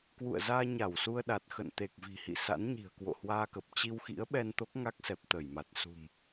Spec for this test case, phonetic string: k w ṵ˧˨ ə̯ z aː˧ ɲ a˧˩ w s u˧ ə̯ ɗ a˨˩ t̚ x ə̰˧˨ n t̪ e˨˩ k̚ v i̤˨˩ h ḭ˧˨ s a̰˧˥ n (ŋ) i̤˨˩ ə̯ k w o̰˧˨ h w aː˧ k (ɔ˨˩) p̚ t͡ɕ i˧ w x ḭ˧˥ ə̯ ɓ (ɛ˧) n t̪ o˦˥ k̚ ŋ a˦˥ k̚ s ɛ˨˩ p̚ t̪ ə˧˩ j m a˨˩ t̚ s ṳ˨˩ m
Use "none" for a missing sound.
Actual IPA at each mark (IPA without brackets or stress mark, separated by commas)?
ɲ, ə˨˩, ɛ˧